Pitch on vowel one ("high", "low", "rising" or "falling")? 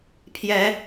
rising